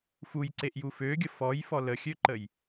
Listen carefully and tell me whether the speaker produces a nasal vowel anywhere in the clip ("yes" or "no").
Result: no